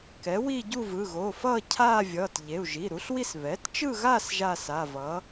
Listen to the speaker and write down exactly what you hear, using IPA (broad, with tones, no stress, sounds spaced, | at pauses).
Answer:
k ɛ˩˥ w i˥˧ ɟ u˥˧ v ɯ˩˧˩ ɣ o˩˧˩ f ʌː˥˧ cʰ aː˥˧ vʲ ʌː˩˧˩ t ʎ e˩˧˩ u̯ ʒ i˩˧˩ ɾ u˩˥ ɬ w i˥˧ s β ɛ˩˥ t t͡ʃ ɯ˥˧ ɣ a˥˧ s ʒ a˥˧ s a˩˧˩ v ʌ˩˥